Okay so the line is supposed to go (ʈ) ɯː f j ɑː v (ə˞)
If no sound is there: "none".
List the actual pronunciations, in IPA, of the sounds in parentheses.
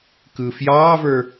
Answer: k, ə˞

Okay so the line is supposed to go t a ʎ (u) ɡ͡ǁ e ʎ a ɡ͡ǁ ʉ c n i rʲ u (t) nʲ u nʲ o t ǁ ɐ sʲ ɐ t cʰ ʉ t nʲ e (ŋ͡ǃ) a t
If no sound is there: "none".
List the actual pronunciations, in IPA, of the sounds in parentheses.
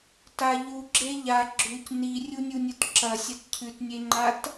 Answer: u, none, ŋ͡ǃ

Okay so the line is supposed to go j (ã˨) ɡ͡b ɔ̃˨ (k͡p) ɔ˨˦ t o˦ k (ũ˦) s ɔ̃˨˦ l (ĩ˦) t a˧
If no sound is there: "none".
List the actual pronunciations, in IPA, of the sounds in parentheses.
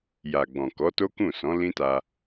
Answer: a˨, k, ũ˦˨, ĩ˦

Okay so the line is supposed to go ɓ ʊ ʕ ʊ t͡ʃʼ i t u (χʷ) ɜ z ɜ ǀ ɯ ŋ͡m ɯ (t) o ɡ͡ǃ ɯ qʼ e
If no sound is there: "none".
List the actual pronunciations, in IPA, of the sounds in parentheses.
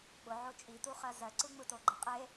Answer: χ, t

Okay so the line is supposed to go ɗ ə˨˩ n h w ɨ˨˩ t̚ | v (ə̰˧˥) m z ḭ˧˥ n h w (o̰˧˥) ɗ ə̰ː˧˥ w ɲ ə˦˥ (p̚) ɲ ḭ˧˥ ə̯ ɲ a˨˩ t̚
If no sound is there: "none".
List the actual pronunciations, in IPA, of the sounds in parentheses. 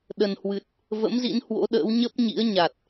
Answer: ə̰˧˥, o̰˧˥, p̚

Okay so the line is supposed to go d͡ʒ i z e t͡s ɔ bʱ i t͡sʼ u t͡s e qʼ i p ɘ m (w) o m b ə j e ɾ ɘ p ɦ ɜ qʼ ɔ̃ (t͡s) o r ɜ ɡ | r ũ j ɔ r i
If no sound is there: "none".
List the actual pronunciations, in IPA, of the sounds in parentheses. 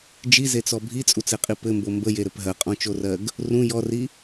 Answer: b, t͡ʃ

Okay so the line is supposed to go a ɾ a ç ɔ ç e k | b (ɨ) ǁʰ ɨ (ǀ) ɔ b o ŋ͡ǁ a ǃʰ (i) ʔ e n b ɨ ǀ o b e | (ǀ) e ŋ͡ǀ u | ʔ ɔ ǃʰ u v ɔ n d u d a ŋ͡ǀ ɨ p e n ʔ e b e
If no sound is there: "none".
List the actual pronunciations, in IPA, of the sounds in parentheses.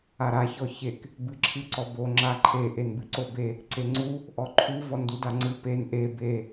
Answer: ɨ, ǀ, e, ǀ

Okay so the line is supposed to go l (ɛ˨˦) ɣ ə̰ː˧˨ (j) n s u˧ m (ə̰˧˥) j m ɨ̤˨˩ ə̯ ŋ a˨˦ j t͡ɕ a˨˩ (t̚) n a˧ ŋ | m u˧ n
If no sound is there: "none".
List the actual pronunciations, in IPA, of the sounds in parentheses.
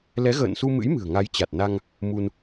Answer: ɛ˨˦, none, ɨ̰˧˥, t̚

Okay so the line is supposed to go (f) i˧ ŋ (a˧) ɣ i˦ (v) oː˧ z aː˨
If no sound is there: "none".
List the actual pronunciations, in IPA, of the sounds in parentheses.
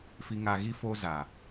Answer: f, a˧, f

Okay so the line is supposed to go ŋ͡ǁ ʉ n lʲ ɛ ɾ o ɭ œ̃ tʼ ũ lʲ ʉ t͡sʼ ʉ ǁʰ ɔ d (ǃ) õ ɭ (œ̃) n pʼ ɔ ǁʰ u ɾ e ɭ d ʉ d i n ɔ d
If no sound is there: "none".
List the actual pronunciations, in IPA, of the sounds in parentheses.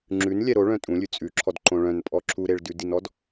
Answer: ǃ, œ̃

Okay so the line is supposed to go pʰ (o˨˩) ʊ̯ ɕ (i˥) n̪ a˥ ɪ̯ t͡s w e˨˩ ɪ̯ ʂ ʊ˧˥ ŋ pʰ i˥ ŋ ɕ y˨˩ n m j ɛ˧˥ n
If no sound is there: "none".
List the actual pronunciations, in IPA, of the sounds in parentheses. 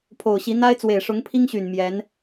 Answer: o˨˩, i˧˥

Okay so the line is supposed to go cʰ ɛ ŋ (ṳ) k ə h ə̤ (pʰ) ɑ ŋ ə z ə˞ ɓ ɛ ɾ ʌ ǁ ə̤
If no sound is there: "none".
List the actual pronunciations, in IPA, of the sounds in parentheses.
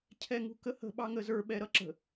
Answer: ṳ, ɓ

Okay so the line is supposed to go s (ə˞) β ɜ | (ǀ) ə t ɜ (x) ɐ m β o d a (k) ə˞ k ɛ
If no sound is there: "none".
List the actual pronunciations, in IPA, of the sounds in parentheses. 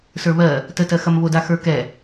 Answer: ə˞, t, x, x

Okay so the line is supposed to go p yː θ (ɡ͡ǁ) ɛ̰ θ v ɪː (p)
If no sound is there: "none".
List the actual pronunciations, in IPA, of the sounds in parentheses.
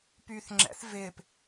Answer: ŋ͡ǁ, p

